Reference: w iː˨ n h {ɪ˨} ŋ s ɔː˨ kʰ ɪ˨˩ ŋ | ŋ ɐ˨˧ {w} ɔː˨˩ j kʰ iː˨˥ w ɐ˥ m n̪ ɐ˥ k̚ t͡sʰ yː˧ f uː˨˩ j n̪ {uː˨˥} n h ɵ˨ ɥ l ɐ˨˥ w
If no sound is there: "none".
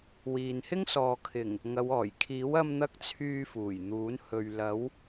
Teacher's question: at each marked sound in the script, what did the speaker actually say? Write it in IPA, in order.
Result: ɪ˥, w, uː˨˥

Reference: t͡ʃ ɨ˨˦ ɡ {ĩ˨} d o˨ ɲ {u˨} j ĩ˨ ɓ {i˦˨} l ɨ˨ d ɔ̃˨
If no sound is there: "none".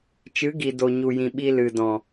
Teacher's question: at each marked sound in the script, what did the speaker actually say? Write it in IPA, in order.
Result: i˨, u˨, i˧

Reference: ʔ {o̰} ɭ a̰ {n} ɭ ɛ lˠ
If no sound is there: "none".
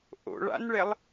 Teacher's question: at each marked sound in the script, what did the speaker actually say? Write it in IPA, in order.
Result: o̰, n

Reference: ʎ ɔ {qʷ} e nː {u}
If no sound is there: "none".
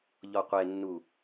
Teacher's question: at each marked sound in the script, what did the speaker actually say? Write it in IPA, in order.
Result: qʷ, u

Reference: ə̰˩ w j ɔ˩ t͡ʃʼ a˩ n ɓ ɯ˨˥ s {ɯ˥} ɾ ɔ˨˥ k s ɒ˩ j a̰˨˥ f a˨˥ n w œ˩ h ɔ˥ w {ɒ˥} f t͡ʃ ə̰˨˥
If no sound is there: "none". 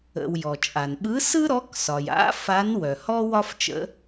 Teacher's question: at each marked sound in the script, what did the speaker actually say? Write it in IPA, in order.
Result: ɯ˥, ɒ˥

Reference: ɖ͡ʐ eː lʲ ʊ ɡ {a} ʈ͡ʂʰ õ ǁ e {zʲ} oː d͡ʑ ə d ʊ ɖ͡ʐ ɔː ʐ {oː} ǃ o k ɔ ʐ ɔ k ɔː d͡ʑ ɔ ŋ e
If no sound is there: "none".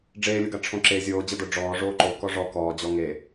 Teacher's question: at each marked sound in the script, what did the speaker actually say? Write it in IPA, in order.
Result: a, zʲ, oː

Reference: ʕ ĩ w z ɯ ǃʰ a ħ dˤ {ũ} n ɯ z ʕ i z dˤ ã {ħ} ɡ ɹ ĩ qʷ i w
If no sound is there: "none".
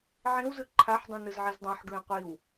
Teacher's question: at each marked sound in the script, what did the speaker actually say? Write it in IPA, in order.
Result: ũ, ħ

